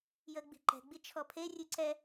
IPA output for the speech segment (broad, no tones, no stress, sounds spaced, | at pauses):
j əː ɡ͡b i̤ ǃ ɛ̤ ɡ͡b i t͡ʃʰ ɔ pʰ e rʲ ʉ ǀ ɛ